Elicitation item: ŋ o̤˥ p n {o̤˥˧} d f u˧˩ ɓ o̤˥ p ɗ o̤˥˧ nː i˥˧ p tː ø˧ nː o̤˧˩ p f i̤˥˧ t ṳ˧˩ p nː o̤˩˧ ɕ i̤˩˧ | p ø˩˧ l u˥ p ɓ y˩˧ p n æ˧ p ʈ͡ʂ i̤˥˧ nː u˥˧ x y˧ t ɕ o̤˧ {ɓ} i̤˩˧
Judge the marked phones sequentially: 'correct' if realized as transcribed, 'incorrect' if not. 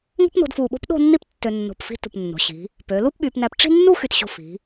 incorrect: o̤˧, incorrect: f

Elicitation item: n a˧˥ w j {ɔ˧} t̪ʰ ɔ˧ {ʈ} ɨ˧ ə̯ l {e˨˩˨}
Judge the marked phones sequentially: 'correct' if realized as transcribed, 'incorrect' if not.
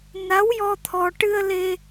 correct, correct, incorrect: e˧

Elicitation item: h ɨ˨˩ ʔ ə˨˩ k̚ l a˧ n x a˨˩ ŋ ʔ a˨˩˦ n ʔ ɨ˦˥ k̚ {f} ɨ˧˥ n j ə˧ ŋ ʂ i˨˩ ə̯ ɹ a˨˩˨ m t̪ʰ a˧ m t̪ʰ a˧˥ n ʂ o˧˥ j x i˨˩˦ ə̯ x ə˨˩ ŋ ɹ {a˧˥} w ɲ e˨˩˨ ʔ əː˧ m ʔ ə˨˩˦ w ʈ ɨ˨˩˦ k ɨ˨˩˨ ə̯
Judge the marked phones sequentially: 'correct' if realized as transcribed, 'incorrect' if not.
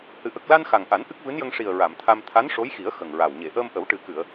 incorrect: v, incorrect: a˨˩

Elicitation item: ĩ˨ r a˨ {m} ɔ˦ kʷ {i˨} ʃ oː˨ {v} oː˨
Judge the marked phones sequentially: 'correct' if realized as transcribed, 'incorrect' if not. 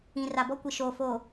incorrect: b, correct, incorrect: f

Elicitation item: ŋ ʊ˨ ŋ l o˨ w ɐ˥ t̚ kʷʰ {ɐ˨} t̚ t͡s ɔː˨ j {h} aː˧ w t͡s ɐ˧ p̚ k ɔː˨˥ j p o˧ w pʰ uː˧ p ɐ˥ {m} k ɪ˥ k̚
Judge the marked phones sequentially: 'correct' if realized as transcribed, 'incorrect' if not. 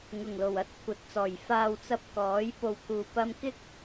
correct, incorrect: f, correct

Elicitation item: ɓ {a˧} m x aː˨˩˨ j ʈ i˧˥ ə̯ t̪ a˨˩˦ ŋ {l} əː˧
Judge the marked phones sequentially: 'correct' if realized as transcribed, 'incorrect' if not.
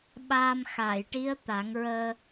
incorrect: aː˧, incorrect: ɹ

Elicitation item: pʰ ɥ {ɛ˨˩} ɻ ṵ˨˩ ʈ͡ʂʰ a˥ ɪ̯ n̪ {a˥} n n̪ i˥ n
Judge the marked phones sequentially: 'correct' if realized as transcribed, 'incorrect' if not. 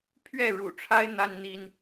incorrect: ɛ˥˩, correct

